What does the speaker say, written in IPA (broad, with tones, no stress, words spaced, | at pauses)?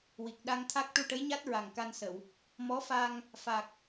wi˨˩k̚ ɗa˧ŋt̪ʰa˦˥k̚ ʈu˧ʈə˧˥jɲa˦˥t̚ ɹa˨˩ŋka˧nsə˨˩˨w | mɔ˧˥fa˧ŋ | fa˨˩k̚